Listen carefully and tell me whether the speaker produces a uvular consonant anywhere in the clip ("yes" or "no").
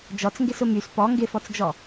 no